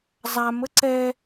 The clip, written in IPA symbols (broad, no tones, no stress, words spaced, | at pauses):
zˤam əǀɛ